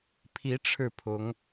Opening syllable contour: rising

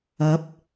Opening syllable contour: rising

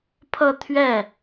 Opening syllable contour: falling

